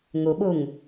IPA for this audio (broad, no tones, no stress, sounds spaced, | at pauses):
ŋ u ɓ u ŋ